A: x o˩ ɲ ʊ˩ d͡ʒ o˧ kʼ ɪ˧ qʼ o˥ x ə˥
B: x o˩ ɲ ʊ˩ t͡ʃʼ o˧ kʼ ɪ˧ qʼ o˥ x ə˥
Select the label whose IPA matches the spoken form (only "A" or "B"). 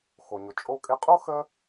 B